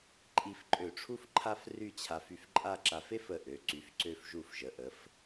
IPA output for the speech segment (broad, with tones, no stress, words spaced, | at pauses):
ǃʼi˧fǃʼø˧˩ʈ͡ʂʰu˥˧f ǃʰa˥fry˥˧t͡ɕʰa˧f y˧fǃʼa˥˧ǁa˧f e˥fə˧˩ʔø˩˧ ǀy˩˧fǀø˧fʒu˧˩fʒə˩˧ ʔə˩˧f